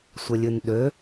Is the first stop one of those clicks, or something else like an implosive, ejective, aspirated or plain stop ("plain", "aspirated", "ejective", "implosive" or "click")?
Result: implosive